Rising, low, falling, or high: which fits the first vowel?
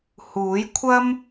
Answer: rising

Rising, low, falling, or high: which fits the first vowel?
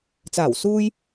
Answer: low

